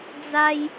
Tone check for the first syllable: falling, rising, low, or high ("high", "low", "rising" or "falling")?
high